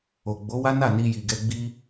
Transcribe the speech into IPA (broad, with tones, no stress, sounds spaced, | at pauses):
o˨ ɡ͡b o˨˦ w a˦ n a˦˨ n i˧ j i˨ ɡ ɛ˧ ɡ͡b i˦